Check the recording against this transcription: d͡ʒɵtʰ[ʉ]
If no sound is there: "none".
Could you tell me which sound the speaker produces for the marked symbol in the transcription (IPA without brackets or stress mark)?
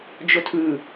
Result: ʉ